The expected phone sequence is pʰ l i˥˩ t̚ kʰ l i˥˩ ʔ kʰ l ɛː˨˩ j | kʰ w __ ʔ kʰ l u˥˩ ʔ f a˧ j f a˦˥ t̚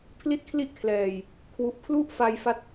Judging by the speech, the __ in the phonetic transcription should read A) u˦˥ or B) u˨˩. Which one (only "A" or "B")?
B